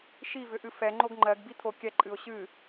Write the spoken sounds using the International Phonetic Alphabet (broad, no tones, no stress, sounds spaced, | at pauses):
ʃ i v ʏ ʔ ɨ f ɛ ŋ͡ǃ o ɡ ŋ͡ǃ ɜ ɡ b i t̪ʰ o kʲ ɛ ǃʼ ɨ ʊ̯ ɕ ɨ